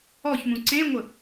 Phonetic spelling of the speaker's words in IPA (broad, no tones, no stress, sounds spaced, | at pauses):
ɔ ç m ũ ǀ ẽ ŋʷ ə